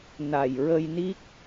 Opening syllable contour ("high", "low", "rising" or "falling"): low